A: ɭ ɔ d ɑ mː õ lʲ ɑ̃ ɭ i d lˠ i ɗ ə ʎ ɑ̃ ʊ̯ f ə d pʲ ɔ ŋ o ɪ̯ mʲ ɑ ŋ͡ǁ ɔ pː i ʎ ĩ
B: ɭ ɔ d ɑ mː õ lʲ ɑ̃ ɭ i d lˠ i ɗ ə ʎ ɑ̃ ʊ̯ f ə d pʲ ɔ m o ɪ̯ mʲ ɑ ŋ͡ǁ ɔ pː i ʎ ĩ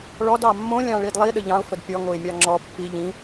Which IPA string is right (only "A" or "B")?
A